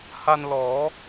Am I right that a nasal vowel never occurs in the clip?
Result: yes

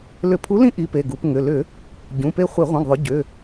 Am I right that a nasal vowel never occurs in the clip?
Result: no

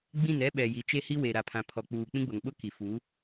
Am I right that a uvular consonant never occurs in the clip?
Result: yes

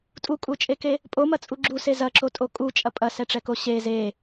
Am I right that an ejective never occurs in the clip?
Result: no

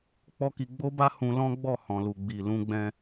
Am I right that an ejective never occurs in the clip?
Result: yes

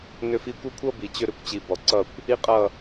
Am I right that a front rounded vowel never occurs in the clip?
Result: no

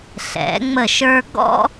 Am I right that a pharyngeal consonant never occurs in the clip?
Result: yes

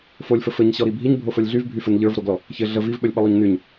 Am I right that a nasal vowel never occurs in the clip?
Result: yes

